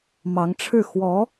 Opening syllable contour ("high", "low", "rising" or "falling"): rising